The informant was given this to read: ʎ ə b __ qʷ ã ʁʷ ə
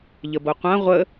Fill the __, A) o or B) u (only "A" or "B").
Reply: A